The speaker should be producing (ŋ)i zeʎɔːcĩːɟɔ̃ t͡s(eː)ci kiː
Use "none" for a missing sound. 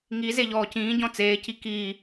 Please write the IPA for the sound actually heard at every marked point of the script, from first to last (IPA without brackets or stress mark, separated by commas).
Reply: ŋ, eː